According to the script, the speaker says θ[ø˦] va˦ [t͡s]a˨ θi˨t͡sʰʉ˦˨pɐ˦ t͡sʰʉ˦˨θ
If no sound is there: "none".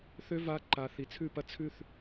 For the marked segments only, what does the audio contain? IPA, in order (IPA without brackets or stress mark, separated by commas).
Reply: ø˦, ǃ